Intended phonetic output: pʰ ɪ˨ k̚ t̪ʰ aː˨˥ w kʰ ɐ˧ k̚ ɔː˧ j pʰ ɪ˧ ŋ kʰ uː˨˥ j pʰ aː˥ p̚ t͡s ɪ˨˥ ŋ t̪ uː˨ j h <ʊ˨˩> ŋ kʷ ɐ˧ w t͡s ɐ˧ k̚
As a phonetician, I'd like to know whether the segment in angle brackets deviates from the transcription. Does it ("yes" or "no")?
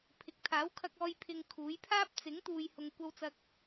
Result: yes